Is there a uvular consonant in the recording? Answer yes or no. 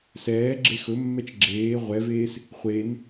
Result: yes